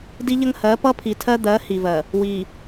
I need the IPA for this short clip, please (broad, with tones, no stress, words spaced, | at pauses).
di˦ʎə˦ŋhɜ˨˦ pʌ˦pʰi˨tʰɜ˦d̪ɜ˨˦ hi˨vɜ˨ | wi˨